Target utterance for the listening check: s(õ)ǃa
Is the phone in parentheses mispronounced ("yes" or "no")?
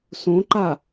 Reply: no